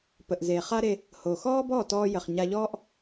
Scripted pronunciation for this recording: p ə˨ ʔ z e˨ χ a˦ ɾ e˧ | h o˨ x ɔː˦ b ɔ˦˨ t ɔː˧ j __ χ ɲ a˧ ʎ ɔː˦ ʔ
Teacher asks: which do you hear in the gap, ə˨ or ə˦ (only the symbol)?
ə˨